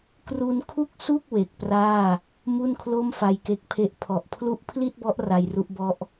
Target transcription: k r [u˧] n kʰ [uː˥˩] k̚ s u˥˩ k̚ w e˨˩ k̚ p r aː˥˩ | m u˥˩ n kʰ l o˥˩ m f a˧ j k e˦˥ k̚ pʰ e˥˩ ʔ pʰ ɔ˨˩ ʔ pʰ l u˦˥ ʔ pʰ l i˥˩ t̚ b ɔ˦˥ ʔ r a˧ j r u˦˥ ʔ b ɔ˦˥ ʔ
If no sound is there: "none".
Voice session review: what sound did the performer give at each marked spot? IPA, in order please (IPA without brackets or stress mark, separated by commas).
u˧, u˥˩